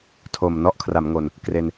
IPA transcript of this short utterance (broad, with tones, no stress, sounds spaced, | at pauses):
tʰ o˨˩ m n ɔ˦˥ ʔ kʰ r a˩˦ m ŋ o˧ n | k r e˧ n